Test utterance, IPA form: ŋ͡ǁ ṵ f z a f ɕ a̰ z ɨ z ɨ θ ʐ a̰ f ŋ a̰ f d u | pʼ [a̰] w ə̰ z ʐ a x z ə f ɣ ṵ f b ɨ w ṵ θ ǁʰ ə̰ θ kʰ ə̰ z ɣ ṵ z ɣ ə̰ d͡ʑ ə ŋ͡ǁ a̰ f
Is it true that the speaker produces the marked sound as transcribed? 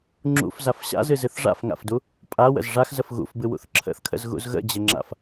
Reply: no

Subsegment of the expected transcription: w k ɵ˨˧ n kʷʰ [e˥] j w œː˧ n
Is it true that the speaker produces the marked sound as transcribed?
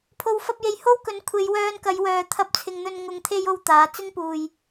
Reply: no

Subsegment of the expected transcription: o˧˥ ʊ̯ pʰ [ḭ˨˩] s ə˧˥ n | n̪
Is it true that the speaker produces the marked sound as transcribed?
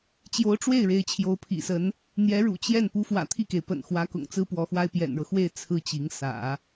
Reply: yes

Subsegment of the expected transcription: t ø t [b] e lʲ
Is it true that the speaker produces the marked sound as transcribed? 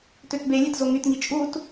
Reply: yes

